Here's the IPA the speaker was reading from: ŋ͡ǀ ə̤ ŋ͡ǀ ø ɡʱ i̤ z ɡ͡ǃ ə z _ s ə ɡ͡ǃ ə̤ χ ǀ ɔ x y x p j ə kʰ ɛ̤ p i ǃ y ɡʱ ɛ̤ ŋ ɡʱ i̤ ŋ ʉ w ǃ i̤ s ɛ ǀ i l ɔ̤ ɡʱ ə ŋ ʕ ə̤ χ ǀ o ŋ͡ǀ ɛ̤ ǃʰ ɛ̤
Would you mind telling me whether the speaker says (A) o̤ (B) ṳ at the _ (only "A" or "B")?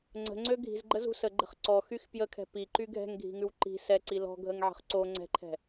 B